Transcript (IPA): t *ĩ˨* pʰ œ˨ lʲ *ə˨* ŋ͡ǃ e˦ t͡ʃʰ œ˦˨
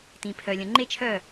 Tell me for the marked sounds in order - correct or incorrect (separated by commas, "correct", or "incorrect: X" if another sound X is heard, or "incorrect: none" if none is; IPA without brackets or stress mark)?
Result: correct, incorrect: ə̃˨